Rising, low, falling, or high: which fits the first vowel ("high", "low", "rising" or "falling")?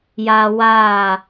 high